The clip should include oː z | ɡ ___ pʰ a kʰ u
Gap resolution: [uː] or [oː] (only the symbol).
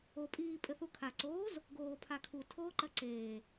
oː